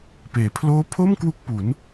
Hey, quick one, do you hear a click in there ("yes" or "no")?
no